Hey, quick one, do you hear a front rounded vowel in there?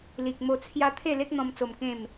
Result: no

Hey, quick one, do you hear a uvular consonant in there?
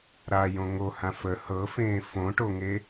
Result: no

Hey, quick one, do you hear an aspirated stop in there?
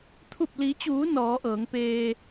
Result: yes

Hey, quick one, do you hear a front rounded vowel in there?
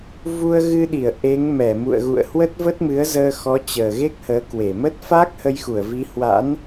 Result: no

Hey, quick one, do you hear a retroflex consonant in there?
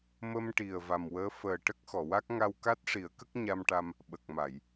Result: yes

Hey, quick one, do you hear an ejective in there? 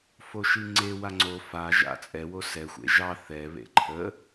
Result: yes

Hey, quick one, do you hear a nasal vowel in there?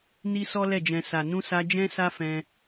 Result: yes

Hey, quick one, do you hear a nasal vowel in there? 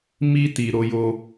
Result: no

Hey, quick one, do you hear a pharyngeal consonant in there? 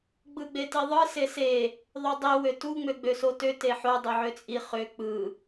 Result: yes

